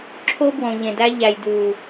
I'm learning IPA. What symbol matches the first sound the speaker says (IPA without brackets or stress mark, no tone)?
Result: ǁʰ